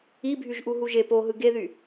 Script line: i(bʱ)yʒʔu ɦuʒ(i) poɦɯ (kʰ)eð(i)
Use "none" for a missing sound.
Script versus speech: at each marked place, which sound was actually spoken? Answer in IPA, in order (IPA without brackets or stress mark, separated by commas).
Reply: bʱ, e, ɡ, y